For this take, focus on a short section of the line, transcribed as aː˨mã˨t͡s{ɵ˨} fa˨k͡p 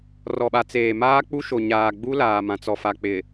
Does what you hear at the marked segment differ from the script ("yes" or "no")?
yes